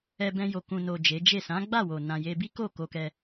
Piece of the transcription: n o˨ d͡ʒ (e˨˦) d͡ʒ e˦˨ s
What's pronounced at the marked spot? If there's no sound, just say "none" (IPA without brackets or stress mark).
e˨˦